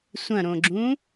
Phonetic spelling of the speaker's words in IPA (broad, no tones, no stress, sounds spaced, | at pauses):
sʷ ɐ̃ ɾ õ ɡ͡ǁ ũ